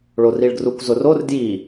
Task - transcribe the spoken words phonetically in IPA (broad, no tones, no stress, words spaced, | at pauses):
ɭoriɭɡrukʷ zʊror dji